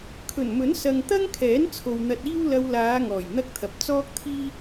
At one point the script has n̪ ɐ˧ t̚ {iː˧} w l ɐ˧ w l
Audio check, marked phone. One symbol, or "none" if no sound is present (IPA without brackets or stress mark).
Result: iː˥